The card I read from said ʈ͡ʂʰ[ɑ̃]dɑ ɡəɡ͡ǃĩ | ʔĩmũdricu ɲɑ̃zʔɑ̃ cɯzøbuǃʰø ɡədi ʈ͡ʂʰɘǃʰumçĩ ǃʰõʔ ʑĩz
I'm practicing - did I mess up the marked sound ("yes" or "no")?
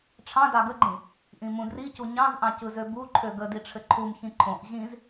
no